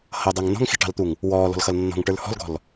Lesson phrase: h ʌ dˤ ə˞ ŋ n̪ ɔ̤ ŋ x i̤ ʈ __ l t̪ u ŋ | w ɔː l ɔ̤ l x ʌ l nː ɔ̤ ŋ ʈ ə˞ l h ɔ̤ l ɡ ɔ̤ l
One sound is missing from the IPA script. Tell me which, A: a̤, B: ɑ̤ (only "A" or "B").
B